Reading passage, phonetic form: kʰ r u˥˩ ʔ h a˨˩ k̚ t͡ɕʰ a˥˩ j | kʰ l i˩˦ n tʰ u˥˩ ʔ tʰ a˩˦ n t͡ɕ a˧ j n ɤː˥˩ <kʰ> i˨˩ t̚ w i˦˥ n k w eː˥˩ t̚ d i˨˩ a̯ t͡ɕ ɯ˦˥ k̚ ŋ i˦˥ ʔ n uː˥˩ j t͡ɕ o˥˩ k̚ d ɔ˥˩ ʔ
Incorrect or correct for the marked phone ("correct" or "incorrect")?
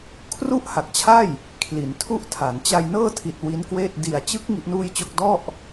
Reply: incorrect